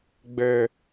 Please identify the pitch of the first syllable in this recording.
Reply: high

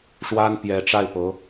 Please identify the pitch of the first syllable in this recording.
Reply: high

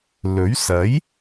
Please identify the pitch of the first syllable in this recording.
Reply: rising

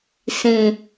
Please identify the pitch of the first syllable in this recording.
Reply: low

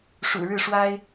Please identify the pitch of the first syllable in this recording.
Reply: low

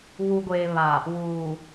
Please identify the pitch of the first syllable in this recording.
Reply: low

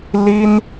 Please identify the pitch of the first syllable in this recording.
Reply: high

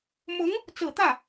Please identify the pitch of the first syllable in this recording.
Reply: rising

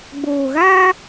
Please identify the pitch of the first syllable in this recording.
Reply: low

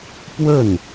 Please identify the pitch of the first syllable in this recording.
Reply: falling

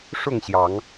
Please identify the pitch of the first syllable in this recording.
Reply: falling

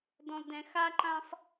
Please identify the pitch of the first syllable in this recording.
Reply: low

